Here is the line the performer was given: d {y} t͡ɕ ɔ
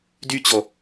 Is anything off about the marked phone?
no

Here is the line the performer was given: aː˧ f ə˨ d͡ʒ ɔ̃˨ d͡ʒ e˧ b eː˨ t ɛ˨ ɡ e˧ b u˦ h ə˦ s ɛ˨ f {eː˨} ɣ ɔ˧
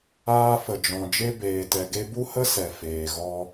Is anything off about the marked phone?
no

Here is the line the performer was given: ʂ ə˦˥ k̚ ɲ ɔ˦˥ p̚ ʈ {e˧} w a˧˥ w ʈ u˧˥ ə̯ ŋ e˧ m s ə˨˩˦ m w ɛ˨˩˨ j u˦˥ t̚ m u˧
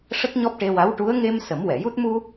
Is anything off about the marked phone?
no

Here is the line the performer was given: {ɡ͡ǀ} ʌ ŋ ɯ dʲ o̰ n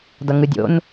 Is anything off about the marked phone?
yes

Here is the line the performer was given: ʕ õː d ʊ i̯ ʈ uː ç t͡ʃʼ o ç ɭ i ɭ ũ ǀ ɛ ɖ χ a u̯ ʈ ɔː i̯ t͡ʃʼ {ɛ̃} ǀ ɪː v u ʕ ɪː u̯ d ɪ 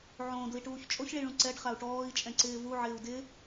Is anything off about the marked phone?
no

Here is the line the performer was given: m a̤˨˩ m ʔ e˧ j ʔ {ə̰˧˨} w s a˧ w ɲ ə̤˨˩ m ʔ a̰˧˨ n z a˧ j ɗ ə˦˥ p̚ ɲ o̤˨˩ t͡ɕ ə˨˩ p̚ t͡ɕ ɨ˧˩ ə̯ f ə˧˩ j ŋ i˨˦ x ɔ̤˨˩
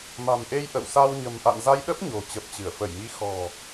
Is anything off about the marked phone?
no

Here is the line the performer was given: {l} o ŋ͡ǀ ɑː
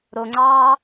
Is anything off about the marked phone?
yes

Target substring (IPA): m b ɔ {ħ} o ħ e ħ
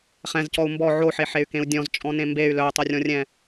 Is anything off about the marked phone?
yes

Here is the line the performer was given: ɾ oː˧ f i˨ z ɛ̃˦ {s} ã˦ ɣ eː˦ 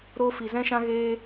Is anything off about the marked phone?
yes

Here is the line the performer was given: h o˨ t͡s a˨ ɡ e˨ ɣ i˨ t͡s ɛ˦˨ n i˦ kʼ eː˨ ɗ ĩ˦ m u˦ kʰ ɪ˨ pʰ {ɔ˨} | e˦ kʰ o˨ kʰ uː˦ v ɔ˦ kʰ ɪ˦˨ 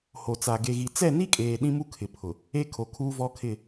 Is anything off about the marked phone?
yes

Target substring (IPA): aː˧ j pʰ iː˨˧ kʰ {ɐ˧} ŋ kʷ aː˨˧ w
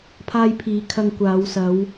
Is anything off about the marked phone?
no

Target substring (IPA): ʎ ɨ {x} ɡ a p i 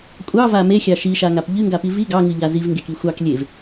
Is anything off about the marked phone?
yes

